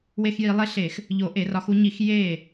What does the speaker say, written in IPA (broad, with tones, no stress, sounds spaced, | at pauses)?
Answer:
w e˧˥˧ x j i˧˩˧ lˠ e˧˥˧ ɬ e˧˩˧ x | ʎ o˧˩˧ ʔ e˧˩˧ r ɒ˨˦ x u˨˦ ɲ i˧˩˧ x j e˥˩